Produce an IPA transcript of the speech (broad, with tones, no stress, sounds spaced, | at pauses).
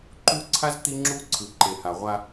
ǃ u˦ ǀʰ a˦ z t̪ i˦ ŋ͡ǁ u˦ ǀʰ ɯ˨ ǃ e˨ h a˨ ʁʷ a˦